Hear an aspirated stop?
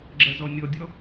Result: no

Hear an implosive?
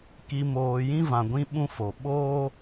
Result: yes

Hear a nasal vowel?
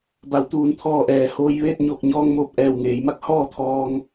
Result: no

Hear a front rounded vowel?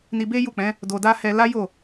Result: no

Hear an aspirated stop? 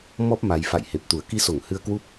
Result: no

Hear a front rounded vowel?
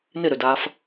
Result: yes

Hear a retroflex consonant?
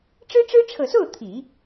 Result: yes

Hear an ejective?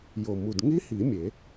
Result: no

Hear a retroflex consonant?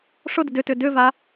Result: yes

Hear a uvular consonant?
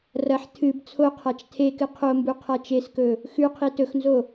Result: yes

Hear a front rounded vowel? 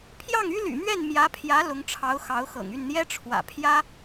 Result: yes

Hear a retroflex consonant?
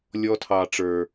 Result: yes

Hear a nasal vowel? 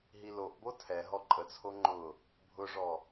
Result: no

